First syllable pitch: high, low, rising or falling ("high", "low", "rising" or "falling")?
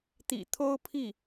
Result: low